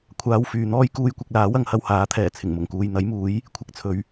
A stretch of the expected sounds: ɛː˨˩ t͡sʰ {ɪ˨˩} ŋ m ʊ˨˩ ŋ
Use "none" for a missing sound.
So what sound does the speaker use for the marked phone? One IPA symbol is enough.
ɪ˨˩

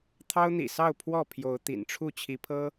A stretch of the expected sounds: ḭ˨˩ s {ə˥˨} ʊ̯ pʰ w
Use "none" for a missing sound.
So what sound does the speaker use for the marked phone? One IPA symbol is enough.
ɑ˥˨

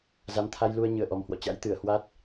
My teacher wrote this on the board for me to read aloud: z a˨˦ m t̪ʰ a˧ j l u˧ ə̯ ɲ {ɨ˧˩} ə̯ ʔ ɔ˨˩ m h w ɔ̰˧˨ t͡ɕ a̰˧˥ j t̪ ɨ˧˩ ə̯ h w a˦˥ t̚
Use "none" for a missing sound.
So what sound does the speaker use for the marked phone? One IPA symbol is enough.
ɨ˧˩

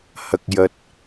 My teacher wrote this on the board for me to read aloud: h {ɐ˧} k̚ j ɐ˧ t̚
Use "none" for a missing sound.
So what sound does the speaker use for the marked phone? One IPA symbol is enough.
ɐ˧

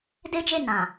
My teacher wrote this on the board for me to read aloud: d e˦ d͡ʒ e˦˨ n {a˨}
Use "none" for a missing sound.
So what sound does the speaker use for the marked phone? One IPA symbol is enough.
ã˨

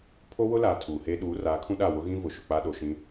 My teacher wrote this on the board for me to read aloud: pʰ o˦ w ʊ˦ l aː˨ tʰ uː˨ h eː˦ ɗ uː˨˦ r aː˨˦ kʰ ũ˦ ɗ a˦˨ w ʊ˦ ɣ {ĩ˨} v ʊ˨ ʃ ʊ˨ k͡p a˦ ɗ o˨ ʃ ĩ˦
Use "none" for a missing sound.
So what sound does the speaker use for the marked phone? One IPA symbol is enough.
ĩ˦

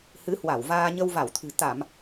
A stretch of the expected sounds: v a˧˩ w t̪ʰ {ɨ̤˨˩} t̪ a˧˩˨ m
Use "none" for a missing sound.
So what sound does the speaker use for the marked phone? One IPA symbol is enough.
ɨ̤˨˩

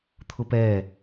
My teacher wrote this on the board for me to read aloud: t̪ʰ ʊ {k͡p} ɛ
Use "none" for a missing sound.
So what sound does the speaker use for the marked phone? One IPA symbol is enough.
p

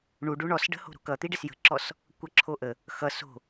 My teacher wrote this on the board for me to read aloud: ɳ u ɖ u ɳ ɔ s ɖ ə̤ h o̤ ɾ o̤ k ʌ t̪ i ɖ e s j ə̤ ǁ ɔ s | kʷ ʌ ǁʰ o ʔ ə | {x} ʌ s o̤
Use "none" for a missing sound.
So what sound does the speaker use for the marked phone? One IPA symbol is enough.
x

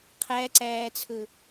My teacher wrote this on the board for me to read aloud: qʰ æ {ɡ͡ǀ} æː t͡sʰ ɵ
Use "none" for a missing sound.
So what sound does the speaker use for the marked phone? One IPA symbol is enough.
ǀ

